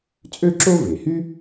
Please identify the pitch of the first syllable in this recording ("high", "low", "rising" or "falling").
high